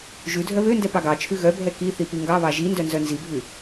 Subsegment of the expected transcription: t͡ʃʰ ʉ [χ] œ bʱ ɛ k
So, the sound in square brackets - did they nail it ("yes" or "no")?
no